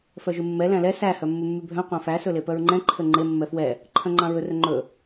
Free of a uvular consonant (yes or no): no